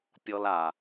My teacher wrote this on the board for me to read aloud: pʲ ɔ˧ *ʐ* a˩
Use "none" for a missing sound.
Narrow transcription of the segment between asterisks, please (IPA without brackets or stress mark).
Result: l